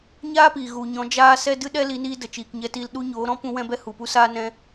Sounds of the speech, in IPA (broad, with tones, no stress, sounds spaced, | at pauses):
ɲ aː˦ p iː˨ ɣ u˨ ɲ ɔ̃˨˦ d͡ʒ aː˦ s ɛ˦ d ɨ˦ ɗ ɛ˦ l i˨˦ n iː˧ d ə˨ t͡ʃ iː˨ k ɲ ɛ˧ t iː˧ l ɗ u˧ ɲ oː˨˦ ɾ ɔ̃˦ p ũ˧ w ɛ̃˧ b ɛ˧ h u˨ p u˦ s aː˦ n ɛ̃˧